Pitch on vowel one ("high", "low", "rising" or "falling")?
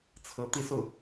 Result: rising